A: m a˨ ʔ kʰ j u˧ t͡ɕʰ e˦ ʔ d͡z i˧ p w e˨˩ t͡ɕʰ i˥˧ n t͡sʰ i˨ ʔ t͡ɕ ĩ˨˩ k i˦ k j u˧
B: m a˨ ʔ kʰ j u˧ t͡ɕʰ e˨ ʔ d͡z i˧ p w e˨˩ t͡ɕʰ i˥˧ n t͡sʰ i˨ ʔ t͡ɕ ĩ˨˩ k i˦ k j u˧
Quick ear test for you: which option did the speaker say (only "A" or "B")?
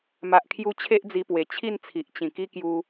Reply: A